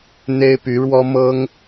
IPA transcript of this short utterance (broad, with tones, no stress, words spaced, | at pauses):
n̪e˥ɪ̯py˧˥ɻwɔ˥ mɤ˥ŋ